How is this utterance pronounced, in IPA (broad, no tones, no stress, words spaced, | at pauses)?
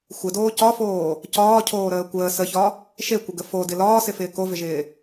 xʷɪdoː cɒfoː | cɒːcʰoːɾəː kʷəː səçɒ | ʃekʷəɡə fodɪ lɒːsɪfɪː kovɪʒɪː